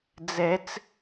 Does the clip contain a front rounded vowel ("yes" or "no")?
no